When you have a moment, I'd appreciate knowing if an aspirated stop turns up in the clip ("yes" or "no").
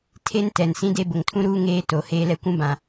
yes